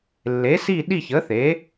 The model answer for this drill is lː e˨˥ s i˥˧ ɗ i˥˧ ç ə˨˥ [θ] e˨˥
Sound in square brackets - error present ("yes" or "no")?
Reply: no